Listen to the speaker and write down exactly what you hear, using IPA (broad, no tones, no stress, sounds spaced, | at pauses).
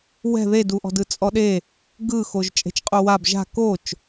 w ɛ̤ ð e d u ʔ ɔ̤ d ɯ t͡sʼ ɔ ɗ e | ɡ ɯ x o ʒ t͡ʃʼ e̤ t͡ʃ qʼ u w a b ʒ a̤ k o t͡ʃ